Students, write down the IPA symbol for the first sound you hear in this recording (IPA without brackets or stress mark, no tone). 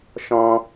ʃ